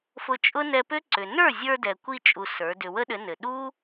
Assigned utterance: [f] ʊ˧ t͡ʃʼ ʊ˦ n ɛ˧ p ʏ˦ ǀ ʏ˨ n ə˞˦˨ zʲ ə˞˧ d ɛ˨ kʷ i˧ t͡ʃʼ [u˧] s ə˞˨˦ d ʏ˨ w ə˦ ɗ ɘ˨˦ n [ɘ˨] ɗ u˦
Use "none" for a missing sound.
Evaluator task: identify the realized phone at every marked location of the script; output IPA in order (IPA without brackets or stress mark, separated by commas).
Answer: f, u˧, ɘ˨